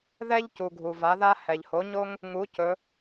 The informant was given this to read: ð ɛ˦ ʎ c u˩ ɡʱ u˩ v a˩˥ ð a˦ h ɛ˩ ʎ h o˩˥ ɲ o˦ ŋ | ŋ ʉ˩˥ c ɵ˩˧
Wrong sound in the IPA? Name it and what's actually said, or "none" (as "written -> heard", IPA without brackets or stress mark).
ʉ˩˥ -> u˩˥